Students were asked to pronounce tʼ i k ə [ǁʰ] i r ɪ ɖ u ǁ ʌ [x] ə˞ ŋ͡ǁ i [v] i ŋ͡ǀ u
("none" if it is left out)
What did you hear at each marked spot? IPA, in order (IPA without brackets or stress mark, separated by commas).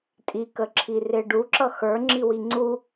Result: ǁʰ, x, w